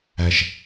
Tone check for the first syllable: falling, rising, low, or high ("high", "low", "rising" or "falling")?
low